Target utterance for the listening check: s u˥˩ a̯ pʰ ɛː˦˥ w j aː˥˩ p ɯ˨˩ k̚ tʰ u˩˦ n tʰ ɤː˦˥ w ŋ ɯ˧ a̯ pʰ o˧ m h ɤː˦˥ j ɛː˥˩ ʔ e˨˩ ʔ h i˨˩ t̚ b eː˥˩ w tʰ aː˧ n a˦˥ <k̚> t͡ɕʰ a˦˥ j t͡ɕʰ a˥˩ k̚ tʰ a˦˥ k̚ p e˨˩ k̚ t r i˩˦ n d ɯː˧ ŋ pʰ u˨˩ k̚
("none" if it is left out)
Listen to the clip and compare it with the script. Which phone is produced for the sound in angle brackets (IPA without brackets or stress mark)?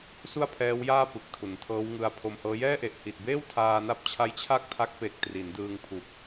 p̚